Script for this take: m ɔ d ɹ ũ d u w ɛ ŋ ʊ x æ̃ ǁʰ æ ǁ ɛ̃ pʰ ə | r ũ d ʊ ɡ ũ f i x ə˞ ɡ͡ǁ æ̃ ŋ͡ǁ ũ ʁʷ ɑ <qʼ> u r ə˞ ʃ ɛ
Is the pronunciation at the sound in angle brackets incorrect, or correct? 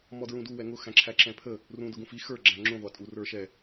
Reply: incorrect: tʼ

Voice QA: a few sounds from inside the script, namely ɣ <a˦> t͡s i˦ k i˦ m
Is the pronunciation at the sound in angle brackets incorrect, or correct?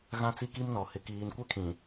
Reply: incorrect: ã˦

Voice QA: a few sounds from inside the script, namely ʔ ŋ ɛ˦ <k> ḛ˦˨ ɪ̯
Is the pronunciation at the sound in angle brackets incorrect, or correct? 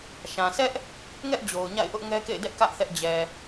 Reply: correct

